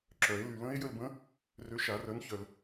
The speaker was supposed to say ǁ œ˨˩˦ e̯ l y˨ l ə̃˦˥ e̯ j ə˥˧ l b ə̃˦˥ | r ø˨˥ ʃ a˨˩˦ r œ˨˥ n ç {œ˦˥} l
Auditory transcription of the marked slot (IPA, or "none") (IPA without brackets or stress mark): œ˨